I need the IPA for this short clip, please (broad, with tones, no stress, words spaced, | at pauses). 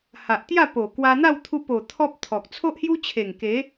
ha˨ʔt̪ja˥˧po˨˩ kwa˧n̪a˥˧w t̪ʰu˧po˨˩ t̪ʰɔ˦p̚t̪ʰɔ˨k̚ t͡sʰo˦ʔhju˦t͡ɕʰe˨˩ŋ ke˨˦